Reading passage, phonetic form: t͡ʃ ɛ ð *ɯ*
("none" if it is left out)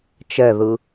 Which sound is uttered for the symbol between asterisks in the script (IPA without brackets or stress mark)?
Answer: ɯ